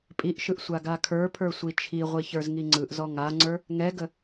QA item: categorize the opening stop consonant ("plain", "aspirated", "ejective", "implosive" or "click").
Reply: ejective